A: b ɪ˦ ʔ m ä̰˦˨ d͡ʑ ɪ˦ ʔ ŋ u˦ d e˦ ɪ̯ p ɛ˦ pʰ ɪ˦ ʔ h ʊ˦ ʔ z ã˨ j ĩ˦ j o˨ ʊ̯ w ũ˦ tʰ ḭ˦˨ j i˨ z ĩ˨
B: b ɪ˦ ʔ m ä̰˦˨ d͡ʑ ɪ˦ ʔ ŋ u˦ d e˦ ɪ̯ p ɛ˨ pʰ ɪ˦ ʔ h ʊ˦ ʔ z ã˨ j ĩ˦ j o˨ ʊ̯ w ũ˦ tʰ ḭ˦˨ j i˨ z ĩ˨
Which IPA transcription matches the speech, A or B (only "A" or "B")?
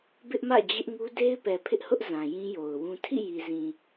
B